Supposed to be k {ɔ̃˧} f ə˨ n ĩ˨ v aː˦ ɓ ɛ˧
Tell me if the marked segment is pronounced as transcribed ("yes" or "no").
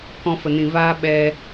yes